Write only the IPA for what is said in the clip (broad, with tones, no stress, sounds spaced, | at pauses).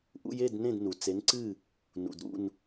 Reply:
ʔ ṵ˧ j e˥˩ d n ẽ˥˩ d n u˩ t͡s e˩˥ n ǀ ɨ˥˩ | n ṵ˩ d ɾ ṵ˥˩ n